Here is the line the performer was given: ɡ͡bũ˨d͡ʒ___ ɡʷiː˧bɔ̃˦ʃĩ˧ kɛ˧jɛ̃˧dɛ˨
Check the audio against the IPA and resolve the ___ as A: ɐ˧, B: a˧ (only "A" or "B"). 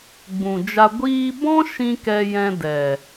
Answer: B